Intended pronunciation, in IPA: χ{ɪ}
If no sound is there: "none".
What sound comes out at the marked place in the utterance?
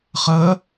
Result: ə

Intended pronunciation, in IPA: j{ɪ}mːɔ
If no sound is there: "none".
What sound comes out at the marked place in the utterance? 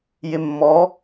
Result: ɪ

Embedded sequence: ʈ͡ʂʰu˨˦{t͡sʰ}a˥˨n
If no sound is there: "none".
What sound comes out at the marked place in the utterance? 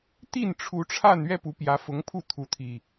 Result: ʈ͡ʂʰ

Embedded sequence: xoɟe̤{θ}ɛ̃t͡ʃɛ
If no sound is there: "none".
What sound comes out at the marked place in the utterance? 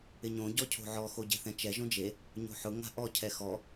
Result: θ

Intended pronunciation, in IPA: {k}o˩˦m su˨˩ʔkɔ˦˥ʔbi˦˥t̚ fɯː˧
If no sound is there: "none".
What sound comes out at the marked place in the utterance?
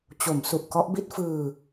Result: t͡ɕ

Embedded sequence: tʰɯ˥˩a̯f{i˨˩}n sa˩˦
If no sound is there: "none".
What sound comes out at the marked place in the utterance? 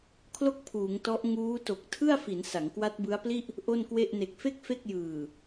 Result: i˩˦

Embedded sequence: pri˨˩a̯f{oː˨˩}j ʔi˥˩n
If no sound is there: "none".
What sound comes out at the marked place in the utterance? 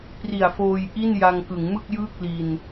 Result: oː˧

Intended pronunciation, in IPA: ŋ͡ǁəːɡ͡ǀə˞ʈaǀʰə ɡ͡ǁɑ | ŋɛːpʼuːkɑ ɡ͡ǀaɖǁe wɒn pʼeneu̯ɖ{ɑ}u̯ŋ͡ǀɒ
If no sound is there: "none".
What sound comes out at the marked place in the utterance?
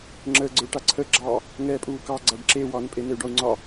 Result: ɒ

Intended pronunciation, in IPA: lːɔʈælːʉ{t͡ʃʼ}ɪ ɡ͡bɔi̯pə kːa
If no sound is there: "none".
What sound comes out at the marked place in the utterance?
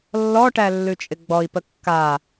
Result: t͡ʃʼ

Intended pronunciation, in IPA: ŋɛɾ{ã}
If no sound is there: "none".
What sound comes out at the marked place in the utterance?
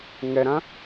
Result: ã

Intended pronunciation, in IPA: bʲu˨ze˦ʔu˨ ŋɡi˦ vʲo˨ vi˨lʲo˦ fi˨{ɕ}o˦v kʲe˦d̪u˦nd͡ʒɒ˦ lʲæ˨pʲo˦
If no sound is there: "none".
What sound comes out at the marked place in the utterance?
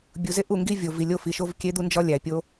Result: ʃ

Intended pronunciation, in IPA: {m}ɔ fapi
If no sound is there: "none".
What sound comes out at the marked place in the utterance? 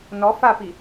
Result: n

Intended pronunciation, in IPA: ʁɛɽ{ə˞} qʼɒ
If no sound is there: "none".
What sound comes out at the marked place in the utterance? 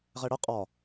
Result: ə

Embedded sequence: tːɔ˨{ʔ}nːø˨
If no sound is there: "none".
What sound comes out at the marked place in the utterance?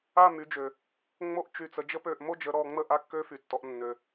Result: ʔ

